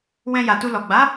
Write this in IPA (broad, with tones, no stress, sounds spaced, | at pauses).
w ɛ̃˧ j a˨ t u˧ l ɔ˨ ɡ͡b a˨˦